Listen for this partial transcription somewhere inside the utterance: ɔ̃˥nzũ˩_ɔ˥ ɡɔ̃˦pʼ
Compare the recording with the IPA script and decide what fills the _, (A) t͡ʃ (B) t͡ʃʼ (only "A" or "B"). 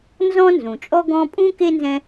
B